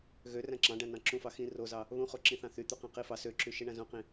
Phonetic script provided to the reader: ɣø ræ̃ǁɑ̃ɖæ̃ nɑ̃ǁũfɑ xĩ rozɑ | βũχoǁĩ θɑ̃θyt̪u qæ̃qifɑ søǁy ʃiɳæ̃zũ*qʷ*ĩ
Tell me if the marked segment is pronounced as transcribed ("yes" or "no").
no